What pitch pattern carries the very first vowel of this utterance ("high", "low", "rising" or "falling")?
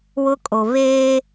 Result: high